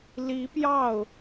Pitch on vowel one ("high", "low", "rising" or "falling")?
rising